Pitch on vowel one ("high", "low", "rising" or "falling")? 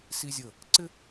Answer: high